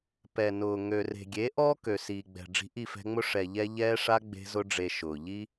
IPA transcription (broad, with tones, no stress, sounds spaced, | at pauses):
p ɛ˨ n ʊː˨ ŋ ø˨ r e̤˨ ɡʲ e˨˦ ʔ ɔː˦ k ø˨ s iː˨ ɡ͡b ɛ̤˨ ɖ͡ʐ i̤˧ ʔ i˦˨ f ɛ̤˧ ŋ͡m ʊ˦ ʂ ɛ˨ ʎ ɛ˧ ʎ ɛː˧ ʂ a˧ ɡ͡b e̤˧ z ʊ˧ ɖ͡ʐ e˨ ʃ ʊː˨ ʎ i˦